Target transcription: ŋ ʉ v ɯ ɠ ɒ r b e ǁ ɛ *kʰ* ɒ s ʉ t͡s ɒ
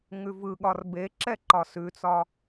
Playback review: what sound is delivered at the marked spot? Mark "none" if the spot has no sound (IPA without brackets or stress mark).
ǃ